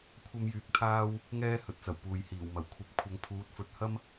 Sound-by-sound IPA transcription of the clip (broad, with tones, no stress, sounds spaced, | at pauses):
kʷʰ ɐ˥ m j yː˧ k̚ t̪ʰ aː˥ w | ŋ ɛː˥ h ɵ˨ t̚ t͡s ɐ˨˩ w p uː˨ j h iː˨˩ w m ɐ˨˩ w kʷʰ ɐ˧ p̚ kʷʰ ɐ˧ ŋ pʰ uː˨˥ t̚ f ɵ˨˥ t̚ h ɐ˥ m